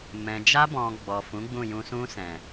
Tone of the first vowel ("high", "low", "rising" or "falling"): low